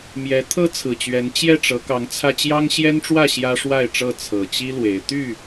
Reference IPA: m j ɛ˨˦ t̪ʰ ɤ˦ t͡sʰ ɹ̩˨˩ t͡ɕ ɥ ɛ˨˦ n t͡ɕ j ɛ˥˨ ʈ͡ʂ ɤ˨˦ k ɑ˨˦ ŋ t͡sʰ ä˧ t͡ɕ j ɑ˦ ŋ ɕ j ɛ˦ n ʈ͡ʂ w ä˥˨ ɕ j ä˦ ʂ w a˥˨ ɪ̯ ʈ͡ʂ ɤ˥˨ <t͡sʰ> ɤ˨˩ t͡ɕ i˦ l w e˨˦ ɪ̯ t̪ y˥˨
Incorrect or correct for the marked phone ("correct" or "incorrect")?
correct